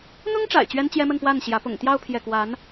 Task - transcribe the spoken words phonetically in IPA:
n̪ʊ˥ŋʈ͡ʂa̰˨˩ɪ̯ t͡ɕɥɛ˥nt͡ɕjɛ˥mə˥˧n pwa˥˩nɕjä˧˥ pʊ̰˨˩ŋt̪jɑ˥˧ʊ̯ pʰjɛ˥˩ kwa˧˥n

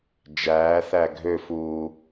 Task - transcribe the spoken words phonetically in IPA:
d͡ʒæː θæɡʱøfuː

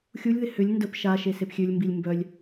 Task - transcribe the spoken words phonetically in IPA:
xʲulʲðɪ hʏlʲ ndəp ʃa ʃesepxʲølʲmbilʲ mbœlʲ

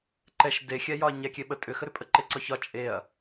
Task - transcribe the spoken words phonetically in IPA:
ǃɛʃ dexʲɛ jɒɐ̯ɲɛ kʲeɓə tʼʏxəɾʏ pʼəǃeǀɒçɒ t͡ʃʼeɐ̯

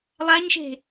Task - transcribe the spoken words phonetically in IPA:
lˠaɲʃe̤

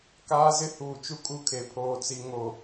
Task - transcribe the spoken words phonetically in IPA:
kaː˦zɪ˦ huː˨t͡ʃu˦kʼu˦˨kʰe˨ pʰoː˨t͡si˨ ŋo˨

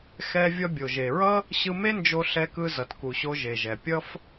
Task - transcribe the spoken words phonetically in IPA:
xɛ˧ vʲʌ˧bʲo˩ʒe˩ɹʌ˥ | ɕɯ˧me˥nd͡ʒo˧ ɬɛ˧kɯ˧ zʌ˩tku˩ɕo˧ ʒe˩ʒɛ˩ pʲʌ˥f

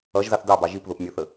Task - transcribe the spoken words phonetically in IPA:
ʌʒzɑθ dɑbɑ ʒip ðʊpmʲə˞θə

